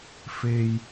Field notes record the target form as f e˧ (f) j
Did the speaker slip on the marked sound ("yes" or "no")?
yes